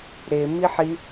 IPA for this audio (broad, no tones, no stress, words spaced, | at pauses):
ɾe miħi